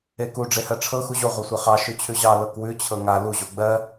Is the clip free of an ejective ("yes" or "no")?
yes